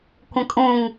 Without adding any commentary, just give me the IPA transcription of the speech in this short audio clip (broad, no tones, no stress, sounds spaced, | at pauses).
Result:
kʷ ə̃ kʼ ũ ŋ